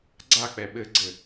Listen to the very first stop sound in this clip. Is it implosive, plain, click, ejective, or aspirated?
click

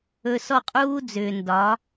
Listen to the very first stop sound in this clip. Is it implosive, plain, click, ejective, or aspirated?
ejective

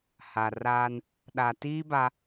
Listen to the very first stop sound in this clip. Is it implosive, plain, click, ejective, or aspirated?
implosive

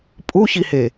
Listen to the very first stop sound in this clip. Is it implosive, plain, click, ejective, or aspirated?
ejective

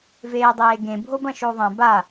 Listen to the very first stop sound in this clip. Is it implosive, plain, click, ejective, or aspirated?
plain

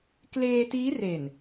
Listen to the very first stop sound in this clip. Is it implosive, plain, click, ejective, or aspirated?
plain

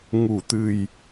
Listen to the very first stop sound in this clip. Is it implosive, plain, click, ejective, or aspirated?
plain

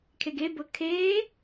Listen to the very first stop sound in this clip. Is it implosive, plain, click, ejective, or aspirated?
aspirated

